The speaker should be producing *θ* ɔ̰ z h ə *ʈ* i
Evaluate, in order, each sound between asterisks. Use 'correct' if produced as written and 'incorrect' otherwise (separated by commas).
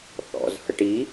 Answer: correct, correct